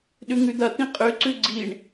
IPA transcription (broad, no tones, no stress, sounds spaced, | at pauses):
ɗ ʉ ŋ ʉ d̪ ɐ t̪ ĩ qʼ ʉ ǀ ʉ ɡ͡ǀ i ɳ